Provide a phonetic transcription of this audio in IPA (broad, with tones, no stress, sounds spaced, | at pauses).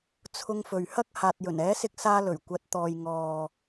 t͡sʰ ʊ˧ ŋ f ɵ˨ ɥ h ɐ˥ k̚ h aː˨ t̚ j ɵ˨˩ n ɛː˨˥ s ɪ˧ k̚ s aː˧ l ɵ˨˩ ɥ kʷ ɐ˨˥ t̚ t̪ ɔː˨ j ŋ ɔː˨